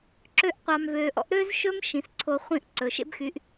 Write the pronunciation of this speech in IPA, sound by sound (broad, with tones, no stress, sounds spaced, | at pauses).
ǁ ø˧ ʔ qʷ ɑ˨ m v ø˨ ʔ ɔ̰˦ ʔ ɾ ø˦ z ʃ ɵ˦ m ʃ ĩ˨ s ǀʰ o˧ χʷ ĩ˦˨ ʔ ǀ ɵ˨ ʃ ḛ˦ b x y˨˦ ʔ